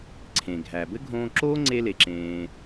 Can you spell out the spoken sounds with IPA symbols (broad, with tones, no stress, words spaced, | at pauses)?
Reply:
ǀʰẽ˩ɡʱæ˩ bɘ˥ɡʱõː˧ǁoː˥ ŋ͡ǀe˧le˩ǁẽː˩